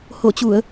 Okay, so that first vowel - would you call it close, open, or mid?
mid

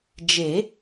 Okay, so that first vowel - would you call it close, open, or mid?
mid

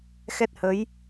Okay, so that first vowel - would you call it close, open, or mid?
mid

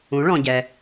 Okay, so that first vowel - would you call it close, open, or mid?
close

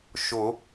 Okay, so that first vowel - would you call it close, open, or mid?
close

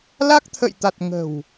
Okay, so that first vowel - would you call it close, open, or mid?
open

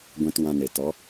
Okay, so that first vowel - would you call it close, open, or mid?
mid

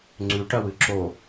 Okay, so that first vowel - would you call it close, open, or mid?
close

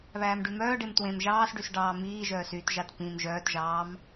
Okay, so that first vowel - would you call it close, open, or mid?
open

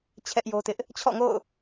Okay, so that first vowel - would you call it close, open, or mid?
mid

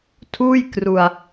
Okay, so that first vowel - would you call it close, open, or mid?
close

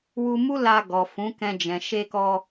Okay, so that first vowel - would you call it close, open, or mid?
close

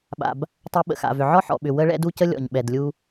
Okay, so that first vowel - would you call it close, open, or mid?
open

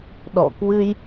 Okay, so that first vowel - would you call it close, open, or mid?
mid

